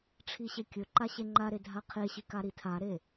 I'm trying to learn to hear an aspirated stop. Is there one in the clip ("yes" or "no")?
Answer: yes